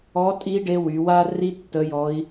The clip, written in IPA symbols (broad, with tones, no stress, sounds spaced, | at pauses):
ɔ˧˥ tʼ i˧˥ ɖ e˧˥ w y˩˧ w a˥ r i˥ tː ə˧˥ j ɔ˧˥ i̯